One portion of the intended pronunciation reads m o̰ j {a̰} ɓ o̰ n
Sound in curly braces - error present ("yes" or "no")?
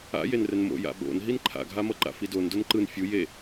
no